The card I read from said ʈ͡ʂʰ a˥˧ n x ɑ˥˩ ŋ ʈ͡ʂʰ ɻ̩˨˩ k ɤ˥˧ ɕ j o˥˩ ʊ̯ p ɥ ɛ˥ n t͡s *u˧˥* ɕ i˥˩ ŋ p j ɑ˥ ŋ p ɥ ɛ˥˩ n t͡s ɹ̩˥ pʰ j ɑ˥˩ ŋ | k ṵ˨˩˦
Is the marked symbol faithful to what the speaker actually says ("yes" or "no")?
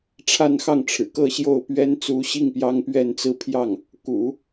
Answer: yes